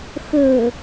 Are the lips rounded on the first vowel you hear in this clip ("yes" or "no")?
yes